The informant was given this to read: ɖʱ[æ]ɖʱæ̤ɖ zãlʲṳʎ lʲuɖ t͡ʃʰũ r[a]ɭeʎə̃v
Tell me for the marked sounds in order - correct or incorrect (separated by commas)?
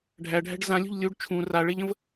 correct, correct